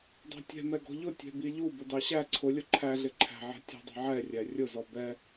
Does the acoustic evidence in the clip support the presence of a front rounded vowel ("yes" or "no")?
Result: no